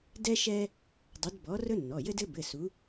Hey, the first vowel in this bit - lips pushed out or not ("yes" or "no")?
no